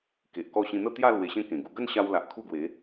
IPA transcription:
k e˨ ʔ k ɔ˥˧ ɕ ĩ˧ n̪ ə˥˧ t̪ j a˥˧ l w e˧ ɕ ẽ˥˧ k ẽ˨˩ ɡ u˧ ɡ ə˥˧ n ɕ a˧ w l a˨ ʔ kʰ u˥˧ ɡ w e˨˦

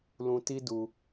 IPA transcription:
l ũ˧ t i˦ d u˧

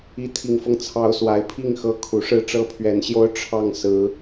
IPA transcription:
i˨˦ t̪ʰ i˨˩ ŋ f ɤ˦ ŋ t͡sʰ ɑ˨˦ ʊ̯ s w a˨˩ ɪ̯ pʰ i˥˨ ŋ x ɤ˦ kʰ u˨˩ ʂ ɻ̩˥˨ ʈ͡ʂ ɤ˦ pʰ ɥ ɛ˨˦ n ɕ j o˦ ʊ̯ ʈ͡ʂʰ ɑ˥˨ ŋ s ɹ̩˨˦

